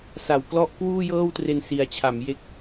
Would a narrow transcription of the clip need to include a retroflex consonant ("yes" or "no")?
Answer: no